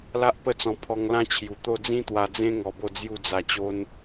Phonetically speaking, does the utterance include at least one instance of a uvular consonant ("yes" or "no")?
no